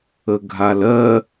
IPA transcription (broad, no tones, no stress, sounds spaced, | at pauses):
ə ɡʱ a l ɜ